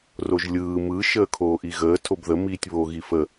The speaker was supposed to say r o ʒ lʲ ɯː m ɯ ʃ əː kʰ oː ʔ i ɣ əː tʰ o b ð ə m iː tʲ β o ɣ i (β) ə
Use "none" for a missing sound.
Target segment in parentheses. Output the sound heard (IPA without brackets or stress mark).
f